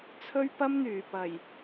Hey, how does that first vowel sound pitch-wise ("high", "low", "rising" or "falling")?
high